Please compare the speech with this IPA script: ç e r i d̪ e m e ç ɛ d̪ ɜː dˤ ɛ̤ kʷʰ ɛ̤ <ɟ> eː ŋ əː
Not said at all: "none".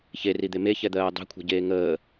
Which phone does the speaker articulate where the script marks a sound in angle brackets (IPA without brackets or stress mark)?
ɟ